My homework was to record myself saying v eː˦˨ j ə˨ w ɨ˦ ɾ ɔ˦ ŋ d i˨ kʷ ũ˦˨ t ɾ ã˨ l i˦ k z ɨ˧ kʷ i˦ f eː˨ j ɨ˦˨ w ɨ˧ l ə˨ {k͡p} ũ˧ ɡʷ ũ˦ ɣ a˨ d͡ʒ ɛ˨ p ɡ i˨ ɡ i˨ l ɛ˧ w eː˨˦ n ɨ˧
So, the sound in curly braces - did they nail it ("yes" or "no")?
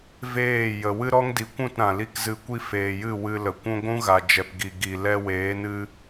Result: no